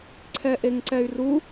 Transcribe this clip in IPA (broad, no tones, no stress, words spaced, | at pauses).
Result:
ǀʰɛʔeŋǀɛy̯ru